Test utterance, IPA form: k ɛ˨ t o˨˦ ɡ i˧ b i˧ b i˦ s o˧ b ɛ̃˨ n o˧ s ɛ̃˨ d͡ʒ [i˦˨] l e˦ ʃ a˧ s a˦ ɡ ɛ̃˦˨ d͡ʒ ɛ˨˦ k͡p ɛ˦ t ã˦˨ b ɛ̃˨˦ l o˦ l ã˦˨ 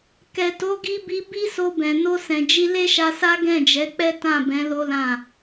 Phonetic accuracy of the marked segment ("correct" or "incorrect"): incorrect